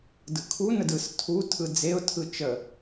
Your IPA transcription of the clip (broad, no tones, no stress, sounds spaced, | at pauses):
d ɯ kʰ u n ə d ɯ s tʰ u tʰ ɯ d͡z e ʊ̯ tʰ ɯ t͡ʃ ə